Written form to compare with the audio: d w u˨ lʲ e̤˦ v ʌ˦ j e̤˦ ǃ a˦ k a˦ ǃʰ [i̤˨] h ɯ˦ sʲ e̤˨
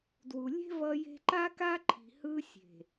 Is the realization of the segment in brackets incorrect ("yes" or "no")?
no